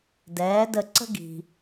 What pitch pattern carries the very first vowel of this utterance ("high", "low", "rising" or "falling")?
rising